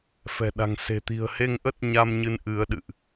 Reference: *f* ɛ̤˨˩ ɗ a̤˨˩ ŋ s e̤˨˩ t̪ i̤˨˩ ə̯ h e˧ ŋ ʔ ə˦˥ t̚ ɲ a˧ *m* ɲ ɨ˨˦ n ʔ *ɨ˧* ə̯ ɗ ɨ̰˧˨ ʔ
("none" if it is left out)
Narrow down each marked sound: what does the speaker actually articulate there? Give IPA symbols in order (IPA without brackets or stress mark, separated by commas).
f, m, ɨ˨˦